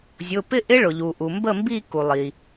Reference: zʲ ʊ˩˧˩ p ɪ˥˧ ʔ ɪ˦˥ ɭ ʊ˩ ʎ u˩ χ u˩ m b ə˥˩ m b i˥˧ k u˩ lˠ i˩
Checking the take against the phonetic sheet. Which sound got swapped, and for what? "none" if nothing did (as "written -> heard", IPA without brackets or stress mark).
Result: χ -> ʔ